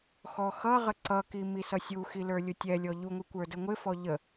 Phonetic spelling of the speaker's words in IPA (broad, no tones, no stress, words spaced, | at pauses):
xɔxʌʁə ǀʌki misʌsʲuxi lə˞lʲʊtʲɛlʲɔ ʎuŋʷɪ kʷə˞dəŋʷɪfɔ ʎə